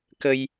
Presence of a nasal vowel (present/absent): absent